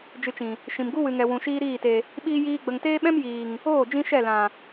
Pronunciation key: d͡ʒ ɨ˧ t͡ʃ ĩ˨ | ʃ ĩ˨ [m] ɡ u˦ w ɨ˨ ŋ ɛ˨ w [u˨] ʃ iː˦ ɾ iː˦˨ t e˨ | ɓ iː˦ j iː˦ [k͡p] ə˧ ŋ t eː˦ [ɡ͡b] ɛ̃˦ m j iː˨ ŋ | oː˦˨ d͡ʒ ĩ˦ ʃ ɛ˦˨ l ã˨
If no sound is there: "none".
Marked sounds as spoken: m, ũ˨, ɡ͡b, ɓ

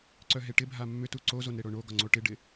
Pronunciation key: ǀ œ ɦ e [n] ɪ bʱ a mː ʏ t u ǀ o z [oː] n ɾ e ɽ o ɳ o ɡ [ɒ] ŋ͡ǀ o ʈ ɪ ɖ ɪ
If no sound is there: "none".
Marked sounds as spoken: ʈ, o, ɒ

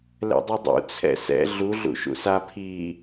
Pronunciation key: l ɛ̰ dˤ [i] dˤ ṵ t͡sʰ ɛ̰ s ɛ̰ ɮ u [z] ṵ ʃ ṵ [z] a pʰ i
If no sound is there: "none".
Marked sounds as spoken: i, ɮ, s

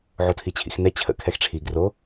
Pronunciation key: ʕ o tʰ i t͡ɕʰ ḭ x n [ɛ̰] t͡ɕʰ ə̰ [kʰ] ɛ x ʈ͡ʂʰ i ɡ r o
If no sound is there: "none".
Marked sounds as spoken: ɛ, kʰ

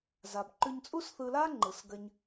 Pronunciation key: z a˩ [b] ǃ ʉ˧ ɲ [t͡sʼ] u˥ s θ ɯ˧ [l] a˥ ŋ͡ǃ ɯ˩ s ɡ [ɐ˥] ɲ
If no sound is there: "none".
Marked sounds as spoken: b, t͡sʼ, l, ɐ˧

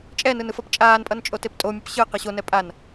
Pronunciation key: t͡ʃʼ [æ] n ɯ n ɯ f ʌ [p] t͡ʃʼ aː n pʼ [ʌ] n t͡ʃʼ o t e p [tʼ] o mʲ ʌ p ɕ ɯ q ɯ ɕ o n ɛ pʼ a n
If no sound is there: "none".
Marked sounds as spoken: ɛ, p, ʌ, tʼ

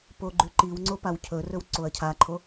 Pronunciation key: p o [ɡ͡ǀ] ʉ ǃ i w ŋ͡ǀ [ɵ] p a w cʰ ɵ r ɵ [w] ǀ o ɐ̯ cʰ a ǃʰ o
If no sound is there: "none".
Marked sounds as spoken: ɡ͡ǃ, o, w

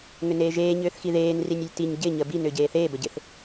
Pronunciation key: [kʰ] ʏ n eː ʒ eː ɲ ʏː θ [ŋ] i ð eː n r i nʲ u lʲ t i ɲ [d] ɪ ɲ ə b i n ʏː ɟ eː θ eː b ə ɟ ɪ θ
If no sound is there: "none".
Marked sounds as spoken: ŋ, x, ɟ

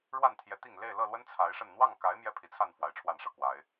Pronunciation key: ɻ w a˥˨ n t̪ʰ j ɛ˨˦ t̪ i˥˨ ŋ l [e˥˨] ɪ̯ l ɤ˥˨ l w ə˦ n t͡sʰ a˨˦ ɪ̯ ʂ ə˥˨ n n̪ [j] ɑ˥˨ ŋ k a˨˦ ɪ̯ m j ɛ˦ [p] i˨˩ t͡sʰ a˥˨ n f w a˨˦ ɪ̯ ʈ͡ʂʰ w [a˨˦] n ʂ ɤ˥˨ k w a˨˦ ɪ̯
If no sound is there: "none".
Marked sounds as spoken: e˥˨, w, pʰ, a˨˩

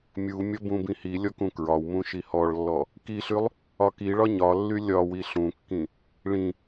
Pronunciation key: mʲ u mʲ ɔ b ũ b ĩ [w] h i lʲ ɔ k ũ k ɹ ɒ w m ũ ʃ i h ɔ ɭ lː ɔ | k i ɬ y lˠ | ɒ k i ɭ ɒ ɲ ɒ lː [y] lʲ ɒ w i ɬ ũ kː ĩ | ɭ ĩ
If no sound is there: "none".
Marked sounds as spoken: none, y

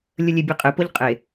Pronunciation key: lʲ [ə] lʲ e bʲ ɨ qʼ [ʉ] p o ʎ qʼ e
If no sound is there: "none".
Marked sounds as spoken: ə, ɨ

